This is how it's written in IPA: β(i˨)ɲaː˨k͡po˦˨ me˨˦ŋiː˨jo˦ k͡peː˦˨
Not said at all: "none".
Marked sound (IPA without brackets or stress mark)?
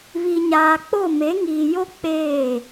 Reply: i˨